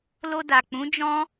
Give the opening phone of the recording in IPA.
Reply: l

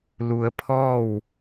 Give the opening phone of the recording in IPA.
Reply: l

